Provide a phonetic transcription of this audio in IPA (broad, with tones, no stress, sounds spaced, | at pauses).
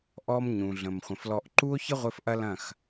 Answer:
ʔ ɔ˦ m ɲ ũ˨ ɮ ə̃˨ m χʷ ə̃˨ f l ɔ˧ ʔ ǃ u˦ o̯ ç ə˦ ʁʷ ɘ˧ f ʔ ɐ˦ l ɐ̃˦˨ x